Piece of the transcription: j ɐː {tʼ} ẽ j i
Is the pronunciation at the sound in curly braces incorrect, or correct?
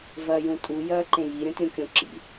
incorrect